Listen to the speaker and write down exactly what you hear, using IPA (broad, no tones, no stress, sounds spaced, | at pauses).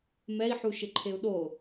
m ɛ i̯ ħ u ʃ ɪ ǃʰ e u̯ ɗ o